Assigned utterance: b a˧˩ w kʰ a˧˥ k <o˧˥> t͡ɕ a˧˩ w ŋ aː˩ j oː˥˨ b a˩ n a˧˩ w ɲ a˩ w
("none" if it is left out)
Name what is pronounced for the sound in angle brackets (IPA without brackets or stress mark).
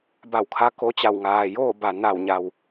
o˧˥